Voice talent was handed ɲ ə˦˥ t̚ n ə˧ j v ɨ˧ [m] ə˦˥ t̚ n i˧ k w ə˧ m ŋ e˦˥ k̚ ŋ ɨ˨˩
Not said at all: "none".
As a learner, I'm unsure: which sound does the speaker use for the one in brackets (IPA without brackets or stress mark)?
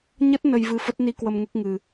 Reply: f